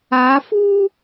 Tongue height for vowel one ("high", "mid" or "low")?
low